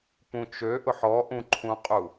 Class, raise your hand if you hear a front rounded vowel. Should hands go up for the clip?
yes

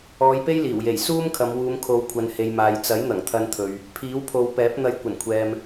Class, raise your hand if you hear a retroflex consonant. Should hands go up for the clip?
no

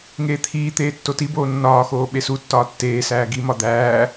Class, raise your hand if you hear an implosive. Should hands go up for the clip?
yes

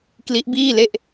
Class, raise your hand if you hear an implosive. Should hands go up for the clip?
no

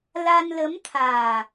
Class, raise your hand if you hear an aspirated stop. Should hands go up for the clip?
yes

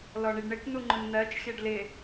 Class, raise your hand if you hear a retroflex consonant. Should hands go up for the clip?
yes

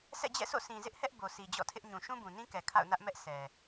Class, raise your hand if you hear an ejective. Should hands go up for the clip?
no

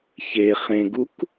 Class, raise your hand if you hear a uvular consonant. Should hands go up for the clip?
yes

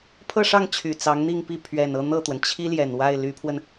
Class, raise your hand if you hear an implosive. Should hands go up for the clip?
no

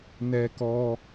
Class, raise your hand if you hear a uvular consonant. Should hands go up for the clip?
no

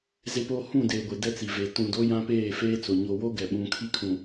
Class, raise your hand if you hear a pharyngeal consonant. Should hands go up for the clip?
no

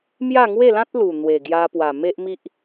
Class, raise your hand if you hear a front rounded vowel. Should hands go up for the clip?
no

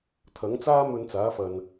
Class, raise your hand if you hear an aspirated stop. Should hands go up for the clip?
yes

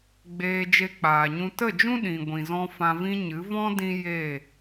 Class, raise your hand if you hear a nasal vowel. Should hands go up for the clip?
yes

